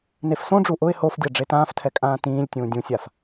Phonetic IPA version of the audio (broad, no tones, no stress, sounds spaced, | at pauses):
n e f s õ ɖ͡ʐ u ʔ ʊ ɪ̯ h o f dʲ a ɖ͡ʐ e t ãː f tʰ ɛ kʼ ãː t ĩː lʲ tʲ ũː dʲ ũ sʲ a f